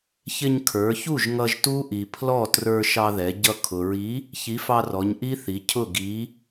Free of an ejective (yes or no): yes